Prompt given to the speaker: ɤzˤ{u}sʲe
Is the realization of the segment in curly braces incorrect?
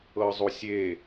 no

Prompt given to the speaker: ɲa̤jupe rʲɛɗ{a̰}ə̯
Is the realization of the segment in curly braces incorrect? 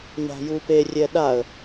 yes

